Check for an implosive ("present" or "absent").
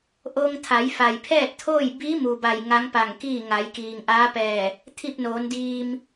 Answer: absent